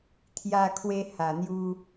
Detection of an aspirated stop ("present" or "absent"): present